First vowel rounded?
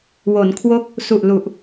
yes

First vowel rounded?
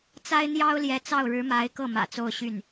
no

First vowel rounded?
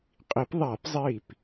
no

